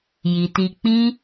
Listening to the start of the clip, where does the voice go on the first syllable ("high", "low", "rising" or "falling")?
low